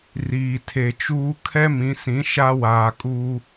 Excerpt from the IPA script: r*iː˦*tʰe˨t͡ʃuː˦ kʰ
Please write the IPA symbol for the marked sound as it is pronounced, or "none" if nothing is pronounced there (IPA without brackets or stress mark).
iː˨